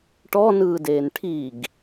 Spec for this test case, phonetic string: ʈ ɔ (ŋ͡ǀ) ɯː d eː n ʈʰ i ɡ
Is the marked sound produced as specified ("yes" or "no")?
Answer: no